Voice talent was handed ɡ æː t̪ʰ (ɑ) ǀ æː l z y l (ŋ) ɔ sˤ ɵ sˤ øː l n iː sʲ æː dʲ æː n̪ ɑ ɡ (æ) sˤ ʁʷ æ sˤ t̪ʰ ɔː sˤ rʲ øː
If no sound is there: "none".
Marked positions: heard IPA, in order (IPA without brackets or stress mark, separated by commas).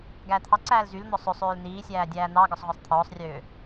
ɑ, n̪, œ